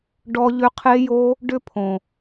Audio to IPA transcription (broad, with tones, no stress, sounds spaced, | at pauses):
ɖ ɔ˧ ʎ ʏ˧ qʰ e˧ j o˧ | ɖ ʏ˦ pʰ õ˨